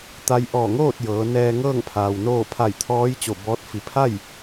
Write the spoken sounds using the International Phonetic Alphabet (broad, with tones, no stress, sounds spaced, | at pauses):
t̪ a˧ j ʔ ɔː˧˩ ŋ oː˥˨ t̚ j ɤː˩˧ n ɛː˧ ŋ ɤː˥˨ ŋ pʰ aː˩ w n oː˥˨ pʰ a˧˩ j t̪ʰ ɔː˧˥ j t͡ɕ o˧˩ b ɔː˧˥ t̚ f i˩˧ pʰ a˥˨ j